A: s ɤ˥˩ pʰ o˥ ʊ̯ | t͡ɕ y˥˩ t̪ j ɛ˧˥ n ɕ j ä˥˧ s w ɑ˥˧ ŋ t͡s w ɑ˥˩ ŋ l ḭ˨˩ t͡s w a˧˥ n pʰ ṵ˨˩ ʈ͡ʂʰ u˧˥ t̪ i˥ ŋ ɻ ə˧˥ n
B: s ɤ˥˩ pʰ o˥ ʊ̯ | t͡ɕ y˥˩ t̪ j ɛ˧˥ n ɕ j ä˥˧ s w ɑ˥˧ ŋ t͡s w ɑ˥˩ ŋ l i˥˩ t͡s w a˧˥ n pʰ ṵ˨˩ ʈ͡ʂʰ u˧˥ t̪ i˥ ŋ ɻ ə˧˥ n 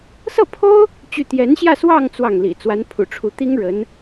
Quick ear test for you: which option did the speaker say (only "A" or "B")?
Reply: A